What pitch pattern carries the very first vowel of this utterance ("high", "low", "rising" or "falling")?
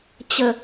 low